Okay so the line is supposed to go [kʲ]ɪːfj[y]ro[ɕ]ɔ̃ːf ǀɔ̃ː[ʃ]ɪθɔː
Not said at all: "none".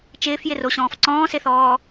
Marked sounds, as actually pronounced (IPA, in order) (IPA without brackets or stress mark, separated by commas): t͡ʃ, ɪ, ɕ, s